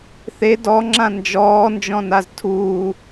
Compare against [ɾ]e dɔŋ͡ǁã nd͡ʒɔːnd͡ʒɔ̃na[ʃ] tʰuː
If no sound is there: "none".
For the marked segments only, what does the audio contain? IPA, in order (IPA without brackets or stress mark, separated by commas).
θ, z